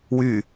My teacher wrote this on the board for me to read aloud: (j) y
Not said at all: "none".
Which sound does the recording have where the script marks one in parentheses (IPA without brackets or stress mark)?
w